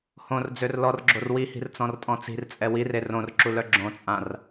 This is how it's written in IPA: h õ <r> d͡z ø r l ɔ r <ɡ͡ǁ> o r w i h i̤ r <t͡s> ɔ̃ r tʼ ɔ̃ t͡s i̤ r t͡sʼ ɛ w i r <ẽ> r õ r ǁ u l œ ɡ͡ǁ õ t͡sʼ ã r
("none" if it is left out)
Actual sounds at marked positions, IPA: r, ɡ͡ǁ, t͡s, e

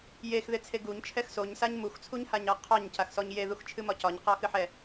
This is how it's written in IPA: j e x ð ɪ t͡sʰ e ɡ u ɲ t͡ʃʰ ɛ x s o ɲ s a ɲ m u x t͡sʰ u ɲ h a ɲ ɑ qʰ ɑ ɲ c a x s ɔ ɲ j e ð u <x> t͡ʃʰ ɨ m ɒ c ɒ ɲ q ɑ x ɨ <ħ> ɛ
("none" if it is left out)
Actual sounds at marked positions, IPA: x, ħ

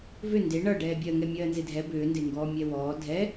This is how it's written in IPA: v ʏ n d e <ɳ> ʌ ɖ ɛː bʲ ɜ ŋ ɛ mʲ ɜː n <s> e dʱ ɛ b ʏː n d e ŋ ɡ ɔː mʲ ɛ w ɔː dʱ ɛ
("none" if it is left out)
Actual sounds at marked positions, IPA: ɳ, z

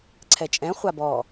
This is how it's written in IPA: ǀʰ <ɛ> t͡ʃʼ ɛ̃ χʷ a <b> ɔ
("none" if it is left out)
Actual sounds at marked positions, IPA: ɛ, b

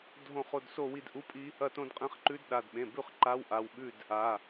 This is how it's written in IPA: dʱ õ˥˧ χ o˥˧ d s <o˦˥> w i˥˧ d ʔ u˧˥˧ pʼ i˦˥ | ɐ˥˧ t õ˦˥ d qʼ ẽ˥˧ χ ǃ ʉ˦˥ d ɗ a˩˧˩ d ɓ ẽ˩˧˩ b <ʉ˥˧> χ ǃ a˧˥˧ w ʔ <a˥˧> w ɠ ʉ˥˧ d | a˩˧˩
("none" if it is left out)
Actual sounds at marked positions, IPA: o˥˧, ʉ˥˧, a˩˧˩

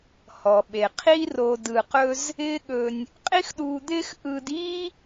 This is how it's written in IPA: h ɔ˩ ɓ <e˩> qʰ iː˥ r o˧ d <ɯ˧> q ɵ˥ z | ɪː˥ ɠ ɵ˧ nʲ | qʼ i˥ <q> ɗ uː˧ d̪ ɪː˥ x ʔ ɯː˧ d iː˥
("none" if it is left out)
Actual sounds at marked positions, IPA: e˩, ɯ˧, x

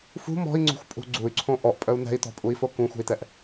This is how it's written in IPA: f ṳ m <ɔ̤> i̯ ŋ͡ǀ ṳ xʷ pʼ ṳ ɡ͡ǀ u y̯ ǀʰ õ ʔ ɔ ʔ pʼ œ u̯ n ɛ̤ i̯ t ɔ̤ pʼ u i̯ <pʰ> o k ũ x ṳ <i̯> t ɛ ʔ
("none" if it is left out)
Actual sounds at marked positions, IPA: ɔ̤, f, i̯

